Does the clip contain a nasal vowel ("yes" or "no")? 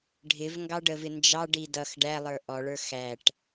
no